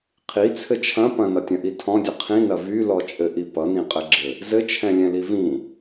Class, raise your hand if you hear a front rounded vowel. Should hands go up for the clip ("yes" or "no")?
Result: yes